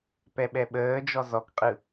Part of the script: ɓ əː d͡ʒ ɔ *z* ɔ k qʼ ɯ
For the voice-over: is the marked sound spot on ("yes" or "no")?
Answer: yes